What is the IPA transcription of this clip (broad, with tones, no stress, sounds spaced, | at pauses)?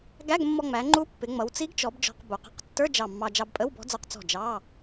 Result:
ɡ æ˧˥˧ ɡ mː ɔ˧ ŋ͡m æ˩˧ ŋ͡ǃ u˧˥ pː ɪ˩˧ ŋ͡m ʌ˩˧ w t͡s i˧˥ ɡ t͡ʃ ɔ˩˧ b d͡ʒ ɔ̤˧ q b u˩˧ q ə̤˧˥˧ q tː ə˞˧˥˧ d͡ʒ ɑ˧˩ mː ɑ˧ d͡ʒ ɑ˧ b pʼ ə˧˥˧ w b ɔ̤˧˥ d͡z ə˞˧ q t͡s ɔ̤˧˩ d͡ʒ ɑ˧˥˧